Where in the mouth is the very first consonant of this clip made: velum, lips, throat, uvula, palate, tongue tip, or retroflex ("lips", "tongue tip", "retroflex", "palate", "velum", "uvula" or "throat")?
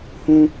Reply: throat